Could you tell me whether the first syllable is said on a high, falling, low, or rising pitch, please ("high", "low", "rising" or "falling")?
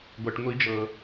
low